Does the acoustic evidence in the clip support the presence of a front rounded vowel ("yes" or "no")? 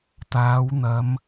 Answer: no